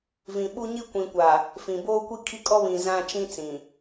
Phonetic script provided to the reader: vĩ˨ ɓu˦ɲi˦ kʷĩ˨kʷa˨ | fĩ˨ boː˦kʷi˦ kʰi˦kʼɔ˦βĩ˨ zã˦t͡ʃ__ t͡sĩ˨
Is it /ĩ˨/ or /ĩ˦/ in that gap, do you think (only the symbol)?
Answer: ĩ˦